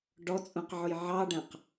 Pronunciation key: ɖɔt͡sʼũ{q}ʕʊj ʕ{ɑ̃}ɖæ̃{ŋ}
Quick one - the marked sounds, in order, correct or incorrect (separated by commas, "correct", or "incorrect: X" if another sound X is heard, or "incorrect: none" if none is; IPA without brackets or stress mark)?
correct, incorrect: ɑ, incorrect: q